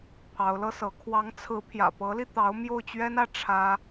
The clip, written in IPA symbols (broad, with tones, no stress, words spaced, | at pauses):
pʰɑ˧˥ʊ̯lɤ˥sɤ˧˥ kʰwɑ˧˥ŋt͡sʰɹ̩˧˥ pʰjä̰˨˩pɤ˧˥li˧t̪ɑ˧˥ʊ̯ mjo˥˩ʊ̯t͡ɕɥɛ˥nä˥˩ ʈ͡ʂʰä˥